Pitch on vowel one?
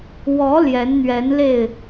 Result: rising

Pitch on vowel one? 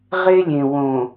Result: high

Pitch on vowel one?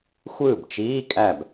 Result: falling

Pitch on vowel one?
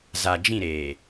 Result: low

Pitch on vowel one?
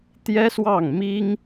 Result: high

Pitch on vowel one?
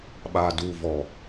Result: low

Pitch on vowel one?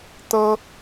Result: high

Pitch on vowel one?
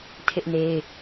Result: high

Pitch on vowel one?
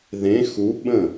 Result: rising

